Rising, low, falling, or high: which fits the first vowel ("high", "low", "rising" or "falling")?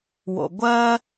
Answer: low